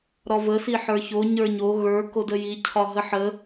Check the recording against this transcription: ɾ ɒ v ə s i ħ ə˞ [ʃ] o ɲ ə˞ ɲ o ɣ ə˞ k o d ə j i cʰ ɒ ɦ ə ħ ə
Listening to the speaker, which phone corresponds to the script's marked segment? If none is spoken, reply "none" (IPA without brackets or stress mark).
ç